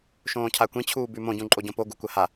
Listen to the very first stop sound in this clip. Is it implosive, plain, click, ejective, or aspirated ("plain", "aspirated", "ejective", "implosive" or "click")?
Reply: aspirated